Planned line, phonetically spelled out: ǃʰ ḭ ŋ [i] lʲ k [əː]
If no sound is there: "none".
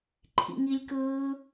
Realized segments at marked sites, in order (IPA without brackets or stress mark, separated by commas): i, ɯː